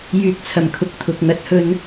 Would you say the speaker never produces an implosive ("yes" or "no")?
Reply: yes